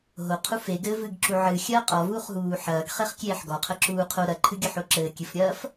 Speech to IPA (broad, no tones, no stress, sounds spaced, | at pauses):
ɦ o qʰ u f e ɡ ɘ v ɨ ɡ ǁ u ʕ ɨ xʲ ɐː qʼ ɔ v uː χ ɦ uː ħ ɐː ɡ χ e χ kʲ eː ħ ɡ ɔ qʰ ɐ ǁ uː qʰ o ɾ ɐ ǃʰ ɨ ɡʲ ɘ ħ o ǁ ɘː kʲ ɨ f ɾʲ ɐː f